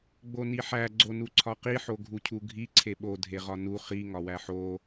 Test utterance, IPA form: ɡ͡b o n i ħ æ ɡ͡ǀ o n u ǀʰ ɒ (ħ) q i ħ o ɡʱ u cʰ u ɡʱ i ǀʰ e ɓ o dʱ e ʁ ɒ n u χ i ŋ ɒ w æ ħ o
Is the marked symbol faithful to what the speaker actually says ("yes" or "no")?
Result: no